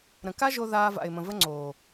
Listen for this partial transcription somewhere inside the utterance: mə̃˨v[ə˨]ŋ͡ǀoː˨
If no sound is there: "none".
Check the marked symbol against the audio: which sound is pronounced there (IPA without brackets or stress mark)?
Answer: ə˦